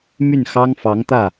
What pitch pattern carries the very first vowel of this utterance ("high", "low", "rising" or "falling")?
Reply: falling